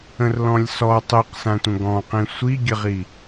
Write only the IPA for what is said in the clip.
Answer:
ə̃rlɔ̃lʲsɔ tˤiqsãtʷə̃ ɡɔ̃qĩ sʷiɡʲəʁi

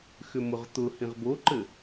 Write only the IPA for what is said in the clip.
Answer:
xʏmʊʁt̪ʊhĩʁ boǃɘ

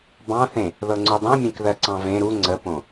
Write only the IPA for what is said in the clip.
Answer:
bɑ̃θẽ | ðɤŋ͡ǀudˤẽmʲẽk ðɜǀɑ̃vẽ ɾu ŋ͡ǀəpõ

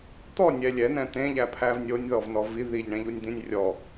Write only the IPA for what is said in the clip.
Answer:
t̪ɔnʲɛ lʲɛnɛ̃ t̪ẽʎæ pʰævnʲonʲðɔv nɔvi ðiʎɳẽʎunʲd̪ĩnʲ rʲɔ

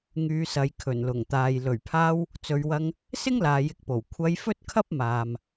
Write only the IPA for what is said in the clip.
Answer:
ŋyː˨˧sɐ˨˧j kʰɵ˨˩nlʊ˨˩ŋt̪aː˨j lɵ˨˩ɥpʰaː˧w | t͡sɵ˨˧ɥwɐ˧ŋ | sɪ˥ŋlaː˨jɪ˨˥k̚po˨˩w kʷʰɐ˧j fɵ˥t̚kʰɐ˥p̚maː˨m

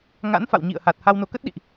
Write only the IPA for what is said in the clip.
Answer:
ŋa̰˧˥n fa̰˧˨wɲḭ˧˨ə̯ha˨˩t̚ ha˧wno˨˦kə˦˥t̚ɗḭ˧˨ʔ

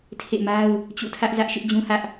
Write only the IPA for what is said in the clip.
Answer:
tʰḛ˦˨ma˦ʊ̯ | t͡ɕṵ˦˨tʰä˦ʔzä˦ʔ ʃɪ˦ʔd͡ʑũ˦hä˦ʔ

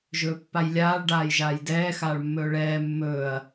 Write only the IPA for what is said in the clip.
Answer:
ʒɵːpːajlʲaːɭ ɖaːjʒaːjdɛː xaːɭmːɵːɭɛː mːɵːɐ̯

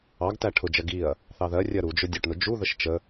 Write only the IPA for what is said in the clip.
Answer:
ɑɡtæ ʈʰʊd͡ʒɜ ɡiɐ̯ | θɑðɜrʲɜ ɾud͡ʒʊ dʲʊʈnʊ d͡ʒuðəʃ t͡ʃə

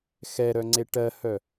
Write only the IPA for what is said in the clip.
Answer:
xɛɾœŋ͡ǀe ʈɜhœ

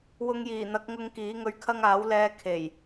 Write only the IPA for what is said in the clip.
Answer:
wʊ˧ŋjiː˨˩n̪ɐ˨˥k̚ŋʊ˧ŋ kiː˨˥ŋɵ˧ɥkʰɐ˥ŋ aː˨˥wlɛː˧kʰe˨˩j

